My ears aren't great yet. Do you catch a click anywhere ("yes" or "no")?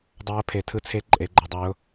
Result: yes